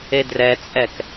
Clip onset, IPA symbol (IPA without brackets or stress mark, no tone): e